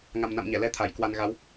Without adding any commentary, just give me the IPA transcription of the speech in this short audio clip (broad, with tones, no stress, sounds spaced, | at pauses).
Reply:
ŋ a˨˩ m n a̰˧˨ m ɲ ɛ˧˩ l ɛ˧ t̪ʰ a˧˩ j k w a˧ n ɣ a˨˦ w